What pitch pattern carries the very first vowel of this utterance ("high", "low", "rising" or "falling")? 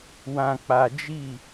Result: low